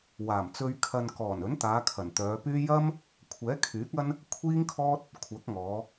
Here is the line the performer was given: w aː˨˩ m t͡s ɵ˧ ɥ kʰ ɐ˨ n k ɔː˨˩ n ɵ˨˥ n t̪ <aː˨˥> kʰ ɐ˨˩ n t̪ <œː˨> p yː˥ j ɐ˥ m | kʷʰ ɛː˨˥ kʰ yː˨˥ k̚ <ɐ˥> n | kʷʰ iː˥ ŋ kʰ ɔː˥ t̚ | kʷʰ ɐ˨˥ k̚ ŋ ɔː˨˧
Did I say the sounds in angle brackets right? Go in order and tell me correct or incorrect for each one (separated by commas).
incorrect, incorrect, correct